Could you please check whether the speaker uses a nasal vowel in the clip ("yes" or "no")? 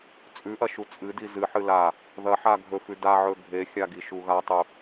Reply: no